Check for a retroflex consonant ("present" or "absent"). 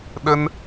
absent